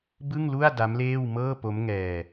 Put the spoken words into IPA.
b ɯ˥˩ ŋ l u˥˩ a̯ d a˦˥ m l eː˥˩ w m ɤː˥˩ p o˦˥ m ŋ ɛː˧

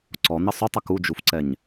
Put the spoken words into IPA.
ǀ ɔ n̪ ɘ sˤ u tˤ ə k u d͡ʒ u f ǀ ɛ ɲ

